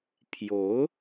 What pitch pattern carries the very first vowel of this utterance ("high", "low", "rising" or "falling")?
rising